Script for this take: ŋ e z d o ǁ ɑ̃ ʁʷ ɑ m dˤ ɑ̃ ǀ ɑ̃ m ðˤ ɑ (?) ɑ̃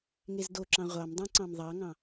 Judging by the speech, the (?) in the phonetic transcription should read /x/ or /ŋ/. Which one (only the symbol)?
ŋ